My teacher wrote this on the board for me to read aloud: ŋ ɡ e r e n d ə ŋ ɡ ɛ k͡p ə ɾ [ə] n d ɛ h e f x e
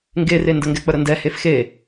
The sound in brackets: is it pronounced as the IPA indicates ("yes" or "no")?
yes